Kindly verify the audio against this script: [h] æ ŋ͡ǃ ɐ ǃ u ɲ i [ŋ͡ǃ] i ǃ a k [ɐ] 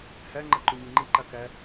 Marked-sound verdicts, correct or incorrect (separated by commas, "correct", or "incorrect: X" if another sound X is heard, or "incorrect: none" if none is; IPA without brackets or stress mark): correct, correct, incorrect: æ